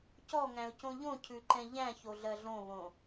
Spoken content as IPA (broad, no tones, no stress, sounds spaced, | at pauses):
c ɔ ŋ æ̃ ʊ̯ c õ ʎ õ cʰ ʉ ǃ ɛ̃ ʎ æ̃ ç o ɮ ɜ ɮ õ β õ